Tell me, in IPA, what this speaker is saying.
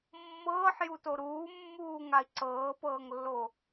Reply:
mː ɤː ħ j u t o ɾ uː mː uː ŋ a i̯ ǀ ɤː p ɤː ŋ lː o

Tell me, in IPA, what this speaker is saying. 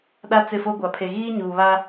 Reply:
ɗ a˦ t͡s ɪ˦˨ f o˦ ɡʷ a˨ pʰ e˨ ɣ iː˦ ɲ uː˨ β a˦

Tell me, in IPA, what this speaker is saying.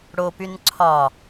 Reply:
ɽ o p y n ǀʰ ɒ

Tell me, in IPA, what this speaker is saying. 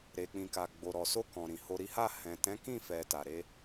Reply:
ɾ e˨ k͡p ĩ˨ k a˨ ɡ͡b o˨ ɾ ɔ˨ s o˧ k ɔ̃˨ ɾ ĩ˨ h o˧ ɾ i˦ h a˦˨ h ɛ̃˨ t ɛ̃˨˦ k ĩ˦˨ f ɛ˨ t a˨ ɾ e˧

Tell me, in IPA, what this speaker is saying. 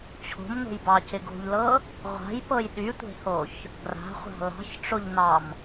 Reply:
t͡ɕʰ o̤ m n o̤ j b ɑ c ɪ ɡ o̤ ʎ l ɤ | ʁʷ a̤ j p ɤ j ɗ y tʷ e̤ h o ç | ɡ r a̤ χʷ ɑ̤ l ɑ̤ ç ʈ͡ʂ o ʎ n ɑ m

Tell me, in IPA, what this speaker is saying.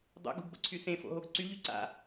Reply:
dˤ o̰ ɡ ṳ ɡ b ə̰ ǀʰ y s ẽ f o̰ ɦ o ɡ ǀ y ʎ y ǀ a̰

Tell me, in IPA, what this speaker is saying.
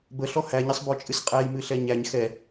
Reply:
b ə ɬ ɔ h æ ɲ ɪ sˤ b ɔ t͡ʃʼ ɨ s qʼ æ j m ɨ ɬ ɛ ɲ æ ɲ x ɛ

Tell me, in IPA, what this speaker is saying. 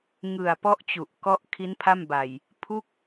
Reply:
ŋ ɯ˨˩ a̯ p ɔ˦˥ ʔ t͡ɕ u˨˩ ʔ k ɔ˦˥ ʔ kʰ i˦˥ n pʰ a˥˩ m b a˨˩ j | pʰ u˥˩ k̚

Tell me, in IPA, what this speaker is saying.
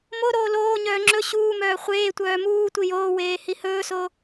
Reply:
m o ɾ oː l oː ɲ œː ŋ͡ǁ ɵ ɕ uː m œː χʷ eː tʷ œː m uː tʷ i j oː w eː h i h ɵː s o

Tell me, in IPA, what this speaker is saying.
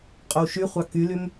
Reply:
qʼ o w ʃ y χʷ ɑ k y l y m

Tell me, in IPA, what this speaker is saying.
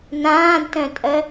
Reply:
n ãː d t œ̃ tʼ œ

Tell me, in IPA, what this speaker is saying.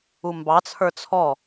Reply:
u m b ɑ t͡sʰ ə˞ t͡sʰ ɔ

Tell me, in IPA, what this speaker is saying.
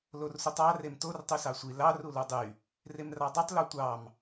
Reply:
l o r s u tˤ ɑ r e m t o r tˤ y s ɑ sʷ i l ɑ r u l u dˤ y | r e m r ɑ dˤ y tˤ l o tʷ ɑ m

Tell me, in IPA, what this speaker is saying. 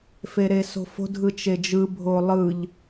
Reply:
f e ɾ e s o̤ f o̤ dʱ ɯ t͡ʃ e d͡ʒ ɯ bʱ o lˠ ɯ ʎ

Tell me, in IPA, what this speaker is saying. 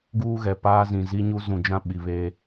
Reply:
ɡ uː˦ ɣ ɛ˨ p aː˦ z ĩ˨ z i˦ ɲ u˦ z ũ˨ d͡ʒ ã˦ ɓ i˨ β e˦

